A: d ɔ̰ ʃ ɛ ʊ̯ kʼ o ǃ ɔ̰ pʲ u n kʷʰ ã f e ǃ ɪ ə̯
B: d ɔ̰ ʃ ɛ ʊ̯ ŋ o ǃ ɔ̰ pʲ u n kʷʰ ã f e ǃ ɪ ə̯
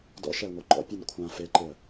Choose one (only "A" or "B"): B